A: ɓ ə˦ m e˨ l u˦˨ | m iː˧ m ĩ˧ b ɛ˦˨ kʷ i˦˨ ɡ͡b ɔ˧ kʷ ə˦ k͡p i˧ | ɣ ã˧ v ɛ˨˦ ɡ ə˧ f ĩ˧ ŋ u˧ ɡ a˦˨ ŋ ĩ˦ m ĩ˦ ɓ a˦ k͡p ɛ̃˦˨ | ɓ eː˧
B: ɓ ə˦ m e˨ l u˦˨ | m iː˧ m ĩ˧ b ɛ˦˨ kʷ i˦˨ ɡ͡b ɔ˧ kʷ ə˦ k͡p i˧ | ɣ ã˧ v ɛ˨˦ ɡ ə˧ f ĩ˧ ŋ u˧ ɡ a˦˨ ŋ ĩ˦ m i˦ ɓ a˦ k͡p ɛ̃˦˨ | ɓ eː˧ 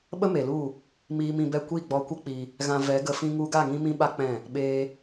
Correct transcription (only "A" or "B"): A